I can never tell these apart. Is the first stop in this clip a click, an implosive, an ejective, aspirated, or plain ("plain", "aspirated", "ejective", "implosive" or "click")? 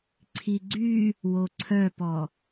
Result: click